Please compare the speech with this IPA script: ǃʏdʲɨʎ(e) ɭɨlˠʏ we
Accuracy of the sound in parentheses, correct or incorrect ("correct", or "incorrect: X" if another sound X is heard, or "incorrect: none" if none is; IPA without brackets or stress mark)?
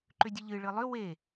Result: incorrect: ɨ